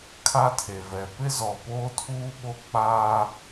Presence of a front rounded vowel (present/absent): absent